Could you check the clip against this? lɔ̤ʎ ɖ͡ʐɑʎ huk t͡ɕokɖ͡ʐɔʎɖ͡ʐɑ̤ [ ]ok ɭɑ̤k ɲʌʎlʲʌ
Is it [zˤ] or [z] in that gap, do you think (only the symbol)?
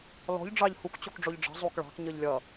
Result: zˤ